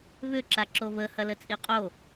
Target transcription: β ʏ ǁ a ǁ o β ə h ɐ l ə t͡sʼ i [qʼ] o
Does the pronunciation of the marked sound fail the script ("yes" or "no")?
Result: no